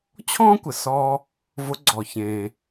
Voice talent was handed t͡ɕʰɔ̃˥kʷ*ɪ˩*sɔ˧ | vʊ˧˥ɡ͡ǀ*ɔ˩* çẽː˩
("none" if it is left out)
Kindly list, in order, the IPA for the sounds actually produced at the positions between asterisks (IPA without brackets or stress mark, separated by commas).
ɪ˩, ɔ˩